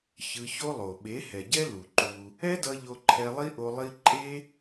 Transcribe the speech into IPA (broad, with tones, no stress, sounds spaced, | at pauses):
ç ɯ˧ ç o˦ lˠ o˨ ɓ e˨˦ h ɛ˨ ɟ ɛ˦ l u˨ ǃ u˧ | ɛ˦ d ʌ˧ ʎ o˧ ǃʰ ɛ˧ lˠ i˦ ʔ o˧ lˠ i˦ ǃʼ e˦